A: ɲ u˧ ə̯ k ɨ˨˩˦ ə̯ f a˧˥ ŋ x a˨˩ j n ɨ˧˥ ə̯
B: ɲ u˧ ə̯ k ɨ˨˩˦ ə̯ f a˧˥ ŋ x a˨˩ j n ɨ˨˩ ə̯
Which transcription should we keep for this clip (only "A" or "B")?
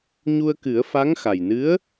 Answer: A